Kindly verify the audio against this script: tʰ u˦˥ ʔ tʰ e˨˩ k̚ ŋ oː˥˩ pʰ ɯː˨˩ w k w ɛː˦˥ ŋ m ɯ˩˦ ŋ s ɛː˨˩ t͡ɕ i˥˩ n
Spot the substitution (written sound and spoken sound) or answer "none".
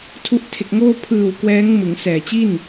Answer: none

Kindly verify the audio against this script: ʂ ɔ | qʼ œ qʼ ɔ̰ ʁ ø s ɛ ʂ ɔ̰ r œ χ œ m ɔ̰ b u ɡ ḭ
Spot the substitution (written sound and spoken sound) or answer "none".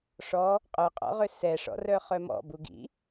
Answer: none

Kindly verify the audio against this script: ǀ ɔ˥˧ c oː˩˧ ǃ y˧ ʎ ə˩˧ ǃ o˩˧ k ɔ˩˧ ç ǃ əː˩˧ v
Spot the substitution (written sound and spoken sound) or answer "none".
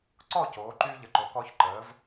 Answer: none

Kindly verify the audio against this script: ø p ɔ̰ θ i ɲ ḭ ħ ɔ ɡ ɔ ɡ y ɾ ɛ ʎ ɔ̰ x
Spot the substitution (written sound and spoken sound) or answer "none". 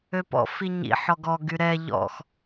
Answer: θ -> f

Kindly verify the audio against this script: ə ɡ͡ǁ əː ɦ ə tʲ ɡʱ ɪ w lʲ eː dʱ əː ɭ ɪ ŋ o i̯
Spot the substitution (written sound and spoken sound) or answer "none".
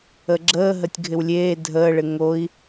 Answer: none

